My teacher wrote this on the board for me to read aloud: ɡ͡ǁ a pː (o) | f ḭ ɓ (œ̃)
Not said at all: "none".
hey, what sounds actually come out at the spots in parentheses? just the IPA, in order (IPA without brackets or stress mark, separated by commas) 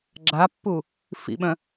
u, œ̃